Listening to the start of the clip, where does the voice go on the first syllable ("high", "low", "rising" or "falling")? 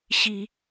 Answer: low